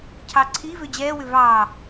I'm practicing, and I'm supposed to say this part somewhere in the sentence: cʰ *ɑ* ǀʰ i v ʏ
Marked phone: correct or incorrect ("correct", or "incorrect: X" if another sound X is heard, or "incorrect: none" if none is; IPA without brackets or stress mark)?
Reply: correct